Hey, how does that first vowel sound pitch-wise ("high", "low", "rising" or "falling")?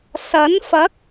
rising